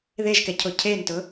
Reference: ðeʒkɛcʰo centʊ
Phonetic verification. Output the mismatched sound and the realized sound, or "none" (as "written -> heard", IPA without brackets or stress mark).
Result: c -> cʰ